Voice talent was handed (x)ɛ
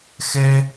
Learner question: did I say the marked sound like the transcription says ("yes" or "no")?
yes